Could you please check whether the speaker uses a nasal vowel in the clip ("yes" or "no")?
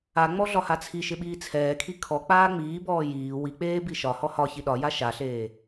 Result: no